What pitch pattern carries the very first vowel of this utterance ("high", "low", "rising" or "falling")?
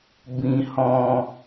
low